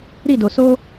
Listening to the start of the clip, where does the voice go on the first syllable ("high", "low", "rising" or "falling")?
falling